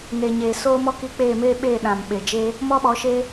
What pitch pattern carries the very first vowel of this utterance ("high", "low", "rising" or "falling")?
low